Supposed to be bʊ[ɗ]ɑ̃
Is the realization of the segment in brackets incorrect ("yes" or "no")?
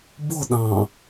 no